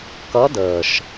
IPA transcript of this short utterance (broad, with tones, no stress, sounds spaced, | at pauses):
k ʌ˧˥ d əː˨˩ ʃ